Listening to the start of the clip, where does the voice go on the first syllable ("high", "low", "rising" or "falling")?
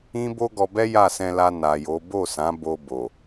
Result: high